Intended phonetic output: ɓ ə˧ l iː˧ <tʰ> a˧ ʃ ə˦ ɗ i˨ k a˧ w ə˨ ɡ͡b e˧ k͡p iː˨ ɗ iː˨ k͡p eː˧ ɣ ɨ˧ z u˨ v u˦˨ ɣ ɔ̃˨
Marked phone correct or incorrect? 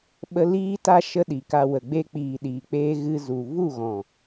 incorrect